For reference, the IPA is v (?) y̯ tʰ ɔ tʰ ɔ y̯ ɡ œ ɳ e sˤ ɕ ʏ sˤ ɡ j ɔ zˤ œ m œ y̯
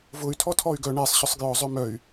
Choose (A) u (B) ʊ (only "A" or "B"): B